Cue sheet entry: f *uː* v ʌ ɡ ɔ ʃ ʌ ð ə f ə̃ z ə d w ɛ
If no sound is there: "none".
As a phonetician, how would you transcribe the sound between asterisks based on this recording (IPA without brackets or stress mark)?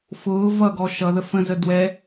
ʊː